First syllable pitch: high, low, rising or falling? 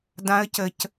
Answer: rising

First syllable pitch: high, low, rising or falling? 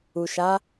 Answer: low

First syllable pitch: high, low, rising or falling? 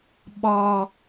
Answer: high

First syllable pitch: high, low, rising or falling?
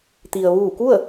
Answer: low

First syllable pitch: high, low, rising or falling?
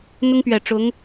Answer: high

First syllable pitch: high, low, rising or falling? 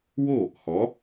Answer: falling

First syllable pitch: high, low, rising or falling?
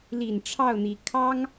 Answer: low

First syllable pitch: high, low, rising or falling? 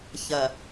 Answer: low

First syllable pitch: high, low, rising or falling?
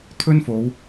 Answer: high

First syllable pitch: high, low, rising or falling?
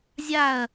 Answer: falling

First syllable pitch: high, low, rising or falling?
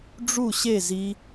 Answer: falling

